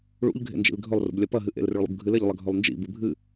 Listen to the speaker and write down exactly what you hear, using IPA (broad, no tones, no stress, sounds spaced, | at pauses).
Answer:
ɭ ṵ ʎ ɡʱ ḛ n d͡ʒ ḭ l ɡʱ ɵ lˠ r ṵ b lʲ ɐ p ɐ ɦ ɨ ʔ ḛ l r ʉ ɭ lˠ ṵ b ɡʱ ɨ l e ʎ lˠ ɐ ɡʱ ɵ lˠ n d͡ʒ ḭ b ɨ bʱ ɨ